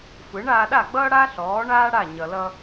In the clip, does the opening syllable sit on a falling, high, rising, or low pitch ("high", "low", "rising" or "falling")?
rising